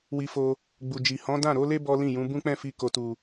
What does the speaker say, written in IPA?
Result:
w i˧ f o˧ | ɡ͡b u˨ d͡ʒ i˨ h ɔ̃˨˦ d ã˦˨ ɾ o˨˦ l e˦ b ɔ˦ l ĩ˦˨ j ũ˨˦ b ũ˦ k͡p ɛ̃˦˨ f i˧ k o˨ t u˨

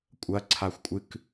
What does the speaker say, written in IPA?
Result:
kʷʼ ɐ ǀʰ a xʷ kʷʼ ɨ k

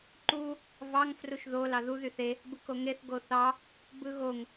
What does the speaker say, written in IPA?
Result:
ǃ u | v ɑ ŋ f r u ʃ ð o l ɑ ð u ð y θ e | b ɯ k o ŋ e θ ɡ o θ ɑ | b ɯ ɣ o ŋ

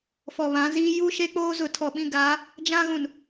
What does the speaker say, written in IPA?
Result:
f ɔ˨ β ã˨˦ z iː˦ j u˦ ʃ e˦ k͡p oː˦ z ʊ˨ tʰ ɔ˨ ɓ ĩ˦˨ ɡ aː˨˦ | d͡ʒ ã˦ ɣ ũ˨ n

